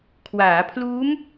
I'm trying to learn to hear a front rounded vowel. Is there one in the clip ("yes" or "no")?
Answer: no